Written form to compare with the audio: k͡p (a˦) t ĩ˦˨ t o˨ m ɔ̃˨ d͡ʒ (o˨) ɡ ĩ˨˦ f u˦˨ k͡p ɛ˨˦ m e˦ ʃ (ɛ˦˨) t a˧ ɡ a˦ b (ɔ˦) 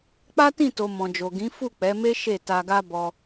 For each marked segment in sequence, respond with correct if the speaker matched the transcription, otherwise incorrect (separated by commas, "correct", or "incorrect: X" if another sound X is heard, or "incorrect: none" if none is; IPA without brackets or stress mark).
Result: correct, correct, incorrect: e˦˨, incorrect: ɔ˧